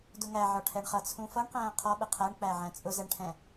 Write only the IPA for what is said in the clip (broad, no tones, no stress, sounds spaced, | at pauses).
d ʊ ŋ æ ʕ ɒ ʈʰ ɛ ɳ χ ʌ t͡sʰ ũ f ʌ ɳ q æ̃ː qʰ ɒ ɓ ə qʰ æ ɳ k͡p æ ʕ æ̃ t͡sʼ ʊ z ɛ ɳ ʈʰ ɛ̃